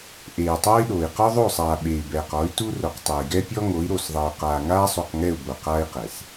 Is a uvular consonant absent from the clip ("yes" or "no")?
no